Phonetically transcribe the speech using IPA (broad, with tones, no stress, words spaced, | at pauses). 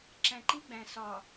ǁæ̃˨ǃi˦ɡ͡bæ̃˨ sɒ˨